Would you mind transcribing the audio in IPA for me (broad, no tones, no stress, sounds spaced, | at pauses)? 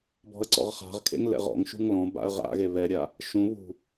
b ɔ̤ ə̯ ǀ ɔ̰ ʁ χ a̤ ʁ kʰ ḛ ŋ l ɛ̰ ʁ ɔ̰ ŋ ʃ ṳ ŋ l ɔ̃ b a̰ ə̯ ʁ a̰ ɣ e β ɛ ɾʲ a | ʃ ũ β ṳ